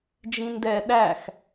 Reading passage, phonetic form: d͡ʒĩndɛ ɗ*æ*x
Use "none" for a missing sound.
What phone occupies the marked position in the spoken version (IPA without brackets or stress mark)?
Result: æ